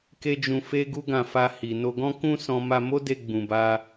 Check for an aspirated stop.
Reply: absent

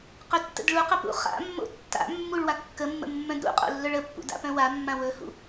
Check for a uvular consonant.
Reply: present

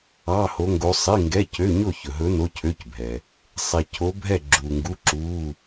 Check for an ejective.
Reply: absent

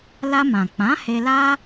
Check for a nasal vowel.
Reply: present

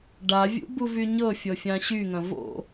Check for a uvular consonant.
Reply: absent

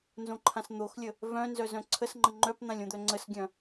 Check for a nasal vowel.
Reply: present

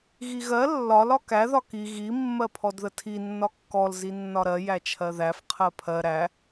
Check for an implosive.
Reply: absent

